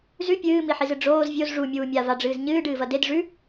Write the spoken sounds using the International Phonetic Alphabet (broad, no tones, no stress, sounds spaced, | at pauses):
z ʉ pʲ ɨː m i ħ i z ɨ ɖ͡ʐ oː z vʲ o z ʐ u mʲ uː mʲ a v a ɖ͡ʐ ɨː z ɲ ɨː ɖ ɨː v ɐ d e d ʐ ʉ